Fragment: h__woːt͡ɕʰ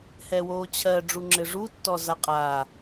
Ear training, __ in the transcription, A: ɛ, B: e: A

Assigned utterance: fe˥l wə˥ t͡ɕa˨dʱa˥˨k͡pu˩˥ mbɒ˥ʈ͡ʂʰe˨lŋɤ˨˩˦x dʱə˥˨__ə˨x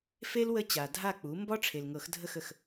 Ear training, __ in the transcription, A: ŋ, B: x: B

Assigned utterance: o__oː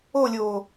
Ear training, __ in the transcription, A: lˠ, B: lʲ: B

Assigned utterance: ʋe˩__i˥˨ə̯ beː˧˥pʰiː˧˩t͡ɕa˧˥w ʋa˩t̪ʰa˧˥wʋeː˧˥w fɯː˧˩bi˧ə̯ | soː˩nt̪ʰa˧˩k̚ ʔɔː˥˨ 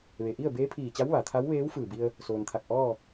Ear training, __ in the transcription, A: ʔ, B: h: A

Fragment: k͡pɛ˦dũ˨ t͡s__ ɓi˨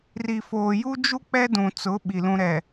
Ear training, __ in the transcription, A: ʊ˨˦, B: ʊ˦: A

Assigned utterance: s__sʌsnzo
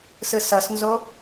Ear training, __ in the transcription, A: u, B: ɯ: B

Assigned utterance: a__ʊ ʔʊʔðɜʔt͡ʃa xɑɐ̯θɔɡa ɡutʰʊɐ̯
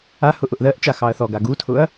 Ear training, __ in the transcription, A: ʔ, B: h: B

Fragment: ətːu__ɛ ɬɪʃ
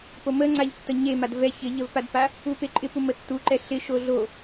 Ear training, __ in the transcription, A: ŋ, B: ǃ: B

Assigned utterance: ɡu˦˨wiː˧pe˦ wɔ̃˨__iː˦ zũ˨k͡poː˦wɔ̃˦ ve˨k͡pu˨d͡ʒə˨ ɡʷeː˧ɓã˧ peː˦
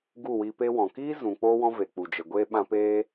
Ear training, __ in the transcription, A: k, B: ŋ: A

